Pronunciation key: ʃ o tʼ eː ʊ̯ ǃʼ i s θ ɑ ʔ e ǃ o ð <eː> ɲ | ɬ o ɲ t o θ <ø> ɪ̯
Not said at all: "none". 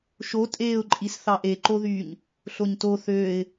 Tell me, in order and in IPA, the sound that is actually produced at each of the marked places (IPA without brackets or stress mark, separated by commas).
yː, øː